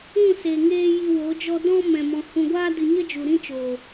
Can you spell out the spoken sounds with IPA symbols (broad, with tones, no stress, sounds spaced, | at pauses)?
ũ˦˨ s e˨ ŋ eː˧ j i˧ w o˨˦ d͡ʒ ɔ˦ d ɔ̃˦ m ɛ̃˨ m ɔ̃˨ h ũ˨ ɡʷ aː˧ d ɨ˨ ɲ ə˦ d͡ʒ u˨ ɾ ĩ˦ t͡ʃ oː˨